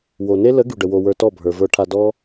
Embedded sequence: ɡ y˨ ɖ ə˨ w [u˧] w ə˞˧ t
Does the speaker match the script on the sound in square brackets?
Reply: no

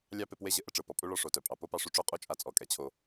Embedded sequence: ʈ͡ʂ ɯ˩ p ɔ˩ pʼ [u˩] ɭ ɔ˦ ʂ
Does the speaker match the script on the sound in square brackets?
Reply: no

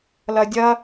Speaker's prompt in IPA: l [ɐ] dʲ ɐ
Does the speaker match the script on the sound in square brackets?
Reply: yes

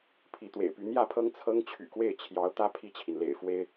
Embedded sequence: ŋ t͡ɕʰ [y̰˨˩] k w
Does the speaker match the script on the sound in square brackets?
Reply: yes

